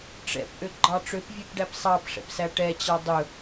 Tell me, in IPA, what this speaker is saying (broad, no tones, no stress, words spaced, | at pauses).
ʈ͡ʂɛ̰pʔøɡ͡ǃɑ ʈ͡ʂøpvʲʉpɖæp sˤɑpʂɛ̰psæ ʈɛt͡ɕɑ dˤɵ